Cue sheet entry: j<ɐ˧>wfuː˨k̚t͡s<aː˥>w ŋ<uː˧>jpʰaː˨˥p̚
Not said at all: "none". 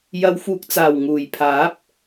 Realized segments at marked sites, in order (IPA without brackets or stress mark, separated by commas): ɐ˨˧, aː˨˩, uː˨˩